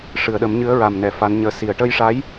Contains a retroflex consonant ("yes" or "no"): yes